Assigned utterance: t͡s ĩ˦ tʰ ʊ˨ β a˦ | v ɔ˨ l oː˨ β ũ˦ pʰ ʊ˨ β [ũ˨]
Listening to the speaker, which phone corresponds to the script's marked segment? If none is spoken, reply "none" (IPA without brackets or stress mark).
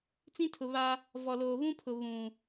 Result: ũ˨